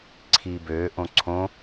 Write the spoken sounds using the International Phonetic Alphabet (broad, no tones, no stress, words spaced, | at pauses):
ǀʰiːbøː ʔõǀʰõ